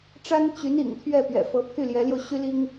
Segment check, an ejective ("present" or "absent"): absent